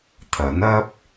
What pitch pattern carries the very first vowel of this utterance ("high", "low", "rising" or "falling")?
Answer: rising